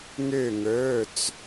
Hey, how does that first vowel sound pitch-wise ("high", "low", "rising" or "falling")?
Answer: falling